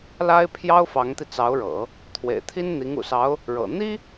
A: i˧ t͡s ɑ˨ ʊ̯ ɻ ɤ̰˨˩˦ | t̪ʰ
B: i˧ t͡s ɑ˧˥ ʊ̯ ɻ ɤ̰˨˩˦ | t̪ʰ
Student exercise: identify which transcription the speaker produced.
B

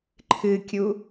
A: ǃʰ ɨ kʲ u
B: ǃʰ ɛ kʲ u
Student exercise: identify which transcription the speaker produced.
A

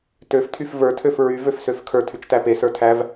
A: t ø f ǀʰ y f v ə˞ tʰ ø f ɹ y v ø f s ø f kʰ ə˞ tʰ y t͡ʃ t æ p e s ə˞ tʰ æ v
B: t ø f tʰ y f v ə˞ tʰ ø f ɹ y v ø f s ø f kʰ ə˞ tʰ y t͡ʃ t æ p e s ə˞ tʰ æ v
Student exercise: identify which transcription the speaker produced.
B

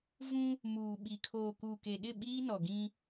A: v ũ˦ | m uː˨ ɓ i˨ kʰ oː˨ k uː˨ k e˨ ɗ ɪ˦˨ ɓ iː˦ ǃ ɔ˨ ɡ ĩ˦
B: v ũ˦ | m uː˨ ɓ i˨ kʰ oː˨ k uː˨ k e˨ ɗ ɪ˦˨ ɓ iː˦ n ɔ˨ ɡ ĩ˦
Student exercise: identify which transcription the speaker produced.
B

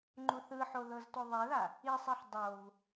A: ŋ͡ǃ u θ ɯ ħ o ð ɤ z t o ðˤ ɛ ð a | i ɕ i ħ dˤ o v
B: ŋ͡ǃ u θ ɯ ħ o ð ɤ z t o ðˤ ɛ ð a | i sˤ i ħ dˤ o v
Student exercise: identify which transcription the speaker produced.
B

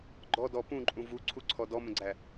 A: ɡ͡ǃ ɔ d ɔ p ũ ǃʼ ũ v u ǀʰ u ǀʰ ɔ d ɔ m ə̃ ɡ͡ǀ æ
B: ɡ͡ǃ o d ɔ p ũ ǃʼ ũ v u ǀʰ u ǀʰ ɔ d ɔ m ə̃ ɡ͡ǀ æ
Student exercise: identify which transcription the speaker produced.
A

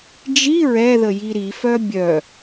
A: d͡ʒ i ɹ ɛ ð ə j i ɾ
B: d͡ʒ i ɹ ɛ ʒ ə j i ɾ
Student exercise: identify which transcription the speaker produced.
A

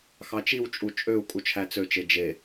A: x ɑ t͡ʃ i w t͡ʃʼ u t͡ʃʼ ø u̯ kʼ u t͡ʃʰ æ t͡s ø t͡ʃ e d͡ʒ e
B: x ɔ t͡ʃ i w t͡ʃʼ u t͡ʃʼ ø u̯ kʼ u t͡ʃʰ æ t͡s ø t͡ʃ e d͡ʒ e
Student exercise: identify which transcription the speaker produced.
A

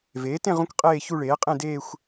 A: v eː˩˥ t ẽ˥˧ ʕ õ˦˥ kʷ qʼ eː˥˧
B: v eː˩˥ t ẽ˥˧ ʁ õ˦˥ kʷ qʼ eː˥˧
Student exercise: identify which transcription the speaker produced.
B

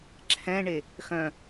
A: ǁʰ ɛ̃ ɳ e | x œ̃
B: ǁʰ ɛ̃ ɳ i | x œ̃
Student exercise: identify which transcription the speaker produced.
A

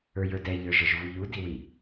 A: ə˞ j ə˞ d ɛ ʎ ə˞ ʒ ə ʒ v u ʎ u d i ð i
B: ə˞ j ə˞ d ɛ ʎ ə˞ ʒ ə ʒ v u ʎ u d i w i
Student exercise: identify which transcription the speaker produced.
B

